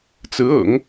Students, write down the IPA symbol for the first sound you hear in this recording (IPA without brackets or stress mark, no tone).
t͡s